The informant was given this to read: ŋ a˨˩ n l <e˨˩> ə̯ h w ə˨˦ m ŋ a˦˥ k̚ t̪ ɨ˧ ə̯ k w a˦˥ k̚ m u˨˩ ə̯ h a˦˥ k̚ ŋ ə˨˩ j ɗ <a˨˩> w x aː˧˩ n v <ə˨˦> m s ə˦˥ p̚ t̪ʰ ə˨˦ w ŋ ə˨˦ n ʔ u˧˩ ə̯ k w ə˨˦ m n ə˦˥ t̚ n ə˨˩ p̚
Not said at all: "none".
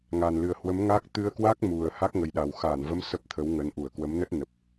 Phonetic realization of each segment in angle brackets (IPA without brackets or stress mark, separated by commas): ɨ˨˩, a˨˩, ə˨˦